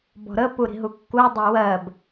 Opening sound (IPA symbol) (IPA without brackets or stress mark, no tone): b